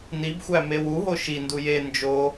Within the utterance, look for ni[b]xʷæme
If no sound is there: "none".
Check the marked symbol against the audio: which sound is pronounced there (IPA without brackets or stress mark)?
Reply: b